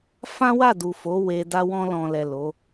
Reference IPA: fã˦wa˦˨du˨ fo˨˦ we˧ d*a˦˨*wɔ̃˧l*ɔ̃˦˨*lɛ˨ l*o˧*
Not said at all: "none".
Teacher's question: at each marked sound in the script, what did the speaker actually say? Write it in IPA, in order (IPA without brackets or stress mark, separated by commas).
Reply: a˧, ɔ̃˨, o˨˦